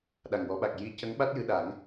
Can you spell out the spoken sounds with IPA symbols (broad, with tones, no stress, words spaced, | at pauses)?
ɗa˨˩ŋwɔ˨˩˦ɓa˨˩k̚ ji˧˥ cə˧˥ŋɓa˦˥t̚ jɨ˧ɗa˨˩˦ŋ